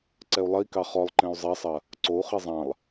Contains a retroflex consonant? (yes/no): no